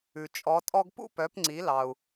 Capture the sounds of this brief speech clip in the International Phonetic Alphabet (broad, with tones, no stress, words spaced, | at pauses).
ʉ˩ t͡ʃʼɔ˩˥tʼɔ˥ɡ pṵ˥pœ˩˥pŋ͡ǀi˩˥lɑ˩u̯